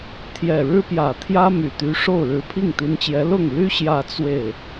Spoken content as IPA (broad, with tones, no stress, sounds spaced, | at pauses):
t̪ʰ j ɛ˨˩ ɻ ɻ̩˥ p j ä˨˩ t̪ʰ j ä˥ m y˨˩ t̪ y˧˥ ʂ o˥˩ ʊ̯ ɻ ɻ̩˧˥ pʰ i˥˩ ŋ t̪ i˧˥ n t͡ɕ j ɛ˧˥ l ʊ˥˩ ŋ l y˥ ɕ j ä˥˧ t͡s w e˥˩ ɪ̯